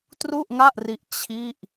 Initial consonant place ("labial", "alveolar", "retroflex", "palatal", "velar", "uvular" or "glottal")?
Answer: alveolar